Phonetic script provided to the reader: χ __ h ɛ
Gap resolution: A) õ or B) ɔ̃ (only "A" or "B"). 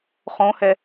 A